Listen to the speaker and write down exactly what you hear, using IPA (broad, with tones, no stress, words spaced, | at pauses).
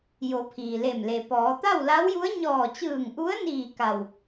jo˩˧ pʰiː˩leː˧˩m le˩pɔː˩˧ t̪a˥˨wla˧˥wju˧˥ə̯ ɲɔː˧˩t͡ɕɯː˧˩ŋʔu˧˥ə̯niː˧˩ ka˧˩w